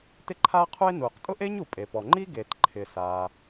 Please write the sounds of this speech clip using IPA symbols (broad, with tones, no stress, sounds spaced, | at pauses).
t ɪ˥ ǃʰ aː˥ qʰ u˥ e̯ n uː˩ q tʼ ʊ˥ ʔ e˥ ɲ u˩ pʼ e˩ p ɔ˩ ŋ͡ǃ i˥ ɡ e˩ t ǃʰ ɪ˩ s aː˩